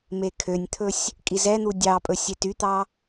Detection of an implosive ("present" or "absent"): absent